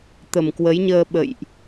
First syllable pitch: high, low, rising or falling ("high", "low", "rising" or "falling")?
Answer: low